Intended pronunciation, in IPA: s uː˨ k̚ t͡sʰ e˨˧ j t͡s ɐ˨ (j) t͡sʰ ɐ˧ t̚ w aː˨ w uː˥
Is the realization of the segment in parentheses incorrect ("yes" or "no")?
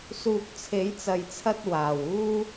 no